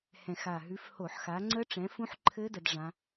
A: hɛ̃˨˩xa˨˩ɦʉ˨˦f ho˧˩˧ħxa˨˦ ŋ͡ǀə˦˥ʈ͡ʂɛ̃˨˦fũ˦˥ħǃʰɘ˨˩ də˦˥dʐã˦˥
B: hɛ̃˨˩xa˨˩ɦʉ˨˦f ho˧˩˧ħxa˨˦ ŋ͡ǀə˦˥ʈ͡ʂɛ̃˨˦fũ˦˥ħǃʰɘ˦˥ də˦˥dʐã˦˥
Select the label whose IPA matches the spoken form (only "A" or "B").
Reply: B